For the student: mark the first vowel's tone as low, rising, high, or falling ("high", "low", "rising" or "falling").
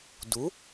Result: rising